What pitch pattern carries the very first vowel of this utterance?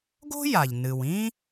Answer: high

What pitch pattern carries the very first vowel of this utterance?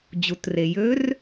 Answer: low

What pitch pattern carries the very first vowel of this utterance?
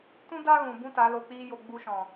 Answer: high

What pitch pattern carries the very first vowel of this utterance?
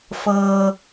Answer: low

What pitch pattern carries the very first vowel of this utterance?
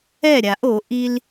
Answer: falling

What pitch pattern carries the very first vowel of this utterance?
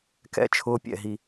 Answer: high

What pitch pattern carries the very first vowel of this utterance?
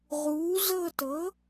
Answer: rising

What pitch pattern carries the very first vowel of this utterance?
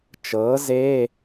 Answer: rising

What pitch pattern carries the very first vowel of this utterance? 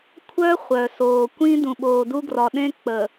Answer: high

